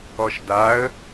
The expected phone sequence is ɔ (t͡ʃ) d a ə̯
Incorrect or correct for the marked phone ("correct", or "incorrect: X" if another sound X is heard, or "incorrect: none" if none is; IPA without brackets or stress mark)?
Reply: incorrect: ʃ